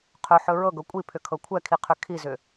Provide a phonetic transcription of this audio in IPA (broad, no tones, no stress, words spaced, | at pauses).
qʰɵħɵ ɹɤɡɤ kʷʼipʰʏkʰɤ kʷʰɛkʰiqʰʏ kʰizʏ